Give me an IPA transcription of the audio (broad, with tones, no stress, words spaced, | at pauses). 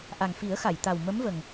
ʔa˨˩ŋfi˨˩˦ə̯xa˨˩˨j t̪a˨˩w mə˧˥mvə˨˩ŋ